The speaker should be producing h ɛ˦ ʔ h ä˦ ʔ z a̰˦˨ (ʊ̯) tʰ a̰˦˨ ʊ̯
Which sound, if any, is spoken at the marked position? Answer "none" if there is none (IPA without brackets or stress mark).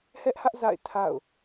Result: ɪ̯